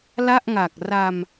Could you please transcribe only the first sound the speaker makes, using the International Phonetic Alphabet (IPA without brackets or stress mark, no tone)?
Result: l